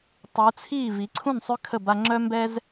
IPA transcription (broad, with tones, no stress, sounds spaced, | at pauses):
tˤ u˩˧ t͡sʰ iː˥˩ v i˩˧ ǀʰ ũ˥˩ n sˤ ø˦ kʰ ə˥˩ b a˦ ŋ͡ǁ œ˦ m b ɛ˦ z